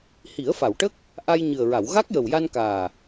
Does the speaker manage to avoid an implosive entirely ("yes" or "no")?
yes